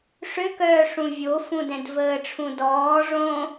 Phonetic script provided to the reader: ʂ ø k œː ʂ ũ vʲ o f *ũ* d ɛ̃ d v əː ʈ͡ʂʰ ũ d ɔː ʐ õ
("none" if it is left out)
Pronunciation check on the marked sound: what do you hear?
ũ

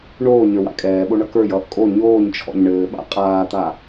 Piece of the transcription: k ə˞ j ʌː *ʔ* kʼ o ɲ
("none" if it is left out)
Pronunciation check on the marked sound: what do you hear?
ʔ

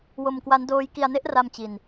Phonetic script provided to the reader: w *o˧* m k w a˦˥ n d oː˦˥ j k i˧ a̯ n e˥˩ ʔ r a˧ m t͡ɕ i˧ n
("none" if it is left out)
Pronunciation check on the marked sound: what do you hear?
o˧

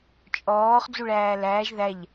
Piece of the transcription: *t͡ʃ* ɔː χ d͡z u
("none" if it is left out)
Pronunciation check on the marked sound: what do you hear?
t͡ʃʼ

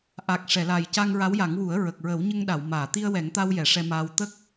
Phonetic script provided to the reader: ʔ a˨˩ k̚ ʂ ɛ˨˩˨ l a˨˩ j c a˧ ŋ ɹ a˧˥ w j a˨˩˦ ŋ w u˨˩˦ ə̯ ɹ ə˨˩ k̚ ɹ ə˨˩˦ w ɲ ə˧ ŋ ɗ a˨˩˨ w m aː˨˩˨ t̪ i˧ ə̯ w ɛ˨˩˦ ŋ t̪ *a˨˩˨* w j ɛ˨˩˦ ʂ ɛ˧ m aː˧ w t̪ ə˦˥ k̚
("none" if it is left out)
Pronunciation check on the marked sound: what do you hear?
a˧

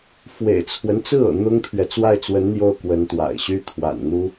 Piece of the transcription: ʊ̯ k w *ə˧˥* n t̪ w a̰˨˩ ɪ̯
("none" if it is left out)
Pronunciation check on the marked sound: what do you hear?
ə˧˥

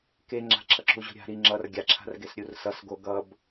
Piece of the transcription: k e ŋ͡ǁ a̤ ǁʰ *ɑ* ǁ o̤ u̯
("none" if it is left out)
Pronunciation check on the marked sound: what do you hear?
ʌ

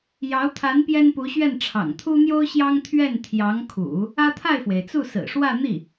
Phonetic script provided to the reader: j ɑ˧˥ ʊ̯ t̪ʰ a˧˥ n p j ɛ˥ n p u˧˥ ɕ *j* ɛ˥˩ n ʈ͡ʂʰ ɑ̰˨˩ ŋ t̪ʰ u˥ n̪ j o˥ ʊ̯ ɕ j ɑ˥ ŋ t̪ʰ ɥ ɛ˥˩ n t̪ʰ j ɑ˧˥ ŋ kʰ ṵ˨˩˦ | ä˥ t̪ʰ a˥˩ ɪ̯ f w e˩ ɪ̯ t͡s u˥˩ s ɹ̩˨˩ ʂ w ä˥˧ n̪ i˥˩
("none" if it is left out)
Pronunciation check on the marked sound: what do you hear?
ɥ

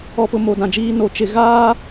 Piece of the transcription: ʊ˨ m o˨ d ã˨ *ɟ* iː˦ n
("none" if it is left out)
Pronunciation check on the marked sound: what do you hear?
d͡ʒ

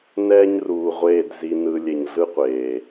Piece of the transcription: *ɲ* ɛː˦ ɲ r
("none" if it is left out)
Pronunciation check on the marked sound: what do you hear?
n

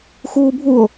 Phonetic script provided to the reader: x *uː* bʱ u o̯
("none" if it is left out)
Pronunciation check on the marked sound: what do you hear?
uː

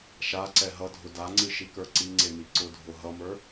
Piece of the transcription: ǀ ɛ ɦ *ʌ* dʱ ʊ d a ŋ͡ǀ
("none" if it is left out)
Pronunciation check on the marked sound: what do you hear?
ʌ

